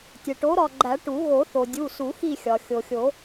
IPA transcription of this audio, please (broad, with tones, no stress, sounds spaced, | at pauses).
tʲ e˩ ʈ o˨˥ ɾ ɒ˦˨ ɡ͡ǃ æ˨˩˦ ʈ u˨˩˦ ɣ o˨˩˦ θ o˩ dʲ u˩˧˩ s u˨˩˦ x i˦˨ xʲ ɒ˩ xʲ o˩ xʲ o˨˩˦